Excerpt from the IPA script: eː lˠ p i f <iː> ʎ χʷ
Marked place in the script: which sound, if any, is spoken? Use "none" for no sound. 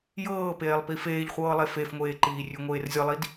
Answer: eː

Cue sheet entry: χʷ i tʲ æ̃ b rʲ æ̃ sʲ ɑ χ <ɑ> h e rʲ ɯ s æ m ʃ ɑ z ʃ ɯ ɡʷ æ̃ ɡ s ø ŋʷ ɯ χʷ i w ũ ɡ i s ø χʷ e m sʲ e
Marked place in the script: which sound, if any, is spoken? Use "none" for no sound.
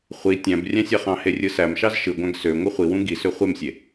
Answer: ɑ̃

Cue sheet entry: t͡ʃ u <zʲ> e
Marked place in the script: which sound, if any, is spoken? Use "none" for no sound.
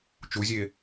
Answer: zʲ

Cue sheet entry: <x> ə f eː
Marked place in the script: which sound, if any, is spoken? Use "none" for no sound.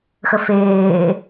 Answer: x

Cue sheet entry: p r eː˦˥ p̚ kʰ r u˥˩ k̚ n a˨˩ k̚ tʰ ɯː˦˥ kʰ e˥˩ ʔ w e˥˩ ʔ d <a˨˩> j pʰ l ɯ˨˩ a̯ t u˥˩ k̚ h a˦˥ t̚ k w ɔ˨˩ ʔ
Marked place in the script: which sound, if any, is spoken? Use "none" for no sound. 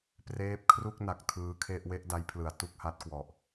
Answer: a˦˥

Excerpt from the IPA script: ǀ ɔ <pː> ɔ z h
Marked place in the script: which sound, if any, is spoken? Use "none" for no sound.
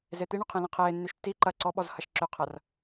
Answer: ɓ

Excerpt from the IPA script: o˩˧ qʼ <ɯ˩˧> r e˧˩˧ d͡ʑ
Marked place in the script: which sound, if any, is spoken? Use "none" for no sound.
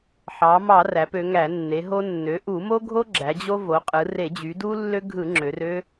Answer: ɯ˩˧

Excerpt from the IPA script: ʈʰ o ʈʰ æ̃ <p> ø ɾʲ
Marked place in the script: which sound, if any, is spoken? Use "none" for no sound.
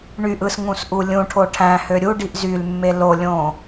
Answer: h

